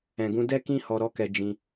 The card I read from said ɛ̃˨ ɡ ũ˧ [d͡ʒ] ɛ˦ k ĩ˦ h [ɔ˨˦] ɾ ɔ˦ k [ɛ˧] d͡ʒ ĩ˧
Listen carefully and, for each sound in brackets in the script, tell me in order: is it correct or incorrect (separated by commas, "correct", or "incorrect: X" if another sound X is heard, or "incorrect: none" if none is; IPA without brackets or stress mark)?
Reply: incorrect: d, incorrect: ɔ˧, correct